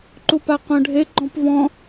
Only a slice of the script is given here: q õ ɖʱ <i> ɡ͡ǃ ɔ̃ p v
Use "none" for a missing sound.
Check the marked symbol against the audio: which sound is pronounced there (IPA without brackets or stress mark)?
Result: e